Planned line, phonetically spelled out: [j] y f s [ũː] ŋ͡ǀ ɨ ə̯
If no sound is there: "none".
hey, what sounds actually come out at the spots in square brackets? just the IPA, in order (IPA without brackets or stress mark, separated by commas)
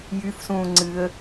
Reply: j, ũː